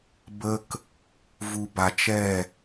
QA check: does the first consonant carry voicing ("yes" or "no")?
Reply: yes